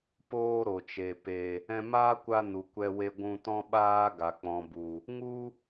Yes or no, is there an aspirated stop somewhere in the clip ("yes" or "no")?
no